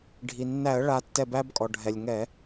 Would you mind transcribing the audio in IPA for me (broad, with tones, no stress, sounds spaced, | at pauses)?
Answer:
ɖʱ i˩ nː æ˧˩˧ ə̯ ɭ a˨˦ tː ɛ˧˩ b æ˦ b kʼ ɔ˩ ɖʱ ɛ˩ lʲ ŋ ɛ˧˩˧